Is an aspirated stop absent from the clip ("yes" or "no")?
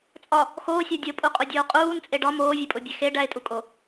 yes